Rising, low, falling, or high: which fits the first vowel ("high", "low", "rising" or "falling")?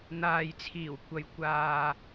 low